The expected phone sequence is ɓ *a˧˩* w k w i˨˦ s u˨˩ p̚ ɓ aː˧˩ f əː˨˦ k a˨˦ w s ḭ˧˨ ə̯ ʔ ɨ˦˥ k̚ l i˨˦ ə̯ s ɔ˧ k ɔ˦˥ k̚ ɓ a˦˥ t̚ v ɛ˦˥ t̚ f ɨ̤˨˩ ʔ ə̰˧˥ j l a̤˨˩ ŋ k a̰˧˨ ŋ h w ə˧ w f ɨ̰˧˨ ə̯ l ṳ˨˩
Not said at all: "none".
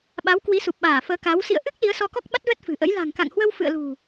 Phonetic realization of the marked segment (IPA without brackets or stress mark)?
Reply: a˨˦